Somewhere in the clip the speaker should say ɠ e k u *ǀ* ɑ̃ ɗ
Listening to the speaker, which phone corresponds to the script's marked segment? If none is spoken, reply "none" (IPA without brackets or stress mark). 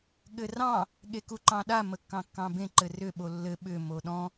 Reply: ǃ